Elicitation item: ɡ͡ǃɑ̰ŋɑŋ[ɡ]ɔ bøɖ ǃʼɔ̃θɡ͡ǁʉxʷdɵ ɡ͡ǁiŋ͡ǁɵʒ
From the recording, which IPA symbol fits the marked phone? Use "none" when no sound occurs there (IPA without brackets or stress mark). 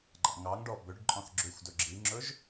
ɖ